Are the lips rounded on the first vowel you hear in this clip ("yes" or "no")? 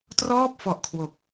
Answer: yes